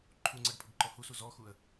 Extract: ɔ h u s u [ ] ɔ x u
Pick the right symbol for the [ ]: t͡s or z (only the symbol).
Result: z